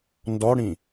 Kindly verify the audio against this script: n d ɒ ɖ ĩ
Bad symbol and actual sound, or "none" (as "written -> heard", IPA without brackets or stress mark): ɖ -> ɽ